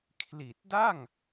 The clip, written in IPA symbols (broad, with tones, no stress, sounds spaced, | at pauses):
kʰ l i˨˩ t̚ d a˥˩ ŋ